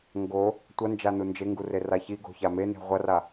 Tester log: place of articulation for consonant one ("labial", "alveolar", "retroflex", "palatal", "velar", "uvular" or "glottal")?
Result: velar